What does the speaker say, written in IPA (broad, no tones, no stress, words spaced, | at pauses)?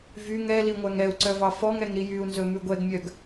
vyŋ ɛli ŋʷæŋɛu̯ǀœvɑ fɔŋɛŋɾi jyu̯nzɵ mʉɡʷɛɡmʲœɡ